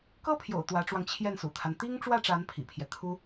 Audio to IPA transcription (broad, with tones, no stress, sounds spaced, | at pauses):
k ɤ˥ pʰ j o̰˨˩ ʊ̯ t̪ w ä˧˥ ʈ͡ʂ w ɑ˧ ŋ t͡ɕʰ j ɛ˥˩ n s ṵ˨˩ t̪ʰ a˦ n t̪ i˥ ŋ ʈ͡ʂ w ä˥˩ ʈ͡ʂ a˧˥ n pʰ ḭ˨˩ pʰ j ɛ˦ t̪ʰ u˥